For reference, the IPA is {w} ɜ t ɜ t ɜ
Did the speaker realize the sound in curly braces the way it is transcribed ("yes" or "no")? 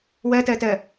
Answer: yes